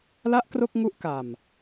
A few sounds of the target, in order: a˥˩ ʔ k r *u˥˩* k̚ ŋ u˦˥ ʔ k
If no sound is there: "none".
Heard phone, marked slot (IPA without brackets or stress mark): o˥˩